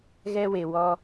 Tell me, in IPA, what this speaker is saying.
ɣ ɛ˦ w e˨ w ɔ˦

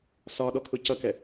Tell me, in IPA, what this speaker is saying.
s ɒ ɗ ɔ kʰ ʊ c ʌ k ɛ

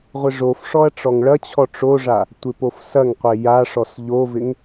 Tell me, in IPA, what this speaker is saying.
ʁʷ ɪ ʐ o f ʂ ɔ ɐ̯ ʈ͡ʂ ɔ ŋ ɭ ɐ t͡ɕʰ ɔ ʈ͡ʂ o ʐ a | tʷ ɪ p o f s ɐ ŋ qʷ e j a ʂ ɔ s ʎ o v ɪ ŋ

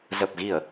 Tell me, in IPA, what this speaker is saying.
z ə˨˩ p̚ ɣ i˧˩˨ ə̯

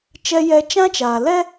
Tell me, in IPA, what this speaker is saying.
t͡ʃ ɛ˦ j ɛ˦ t͡ʃ ã˦ t͡ʃ aː˨ l ɛ˦

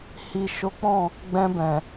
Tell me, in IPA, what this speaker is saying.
h i˨ ʃ o˨˦ k͡p ɔ̃˦˨ | ɡ͡b ɛ̃˧ b ɛ̃˨

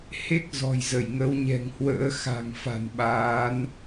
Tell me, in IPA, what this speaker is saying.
h e˦˥ k̚ z ɔ̤˨˩ j z ə˧˩ j ŋ ə˨˦ w ɲ ɛ̤˨˩ ŋ h w ə̰ː˧˥ x a̤˨˩ ŋ f a̤˨˩ n ɓ aː˨˦ n

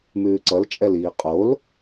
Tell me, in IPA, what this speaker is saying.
m ʉː ǀ ʌ l t͡ʃʼ ɛ l iː qʼ o l

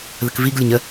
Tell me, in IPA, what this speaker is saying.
ð ə k v i ɡ lʲ ə ɲ ə

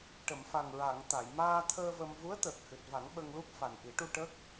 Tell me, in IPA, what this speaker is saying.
ʈ ə˨˩˨ m f a˨˩ ŋ ɹ a˨˩˨ ŋ t̪ a˨˩˨ j m aː˧ t̪ʰ əː˧ v ə˧ m v u˧˥ ə̯ t̪ əː˨˩ k̚ h ɨ˨˩ t̚ v a˨˩˦ ŋ ɓ ə˧ ŋ l u˦˥ p̚ f a˨˩ n ʔ i˨˩˦ ʈ u˧ ʈ ə˦˥ k̚

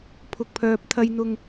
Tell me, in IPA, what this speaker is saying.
pʰ ʊ˨ k̚ pʰ œː˨ p̚ t̪ʰ ɐ˧ j n̪ ʊ˧ ŋ

